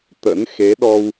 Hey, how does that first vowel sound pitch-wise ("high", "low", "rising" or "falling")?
rising